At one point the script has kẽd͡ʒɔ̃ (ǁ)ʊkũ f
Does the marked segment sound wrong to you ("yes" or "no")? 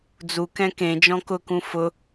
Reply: yes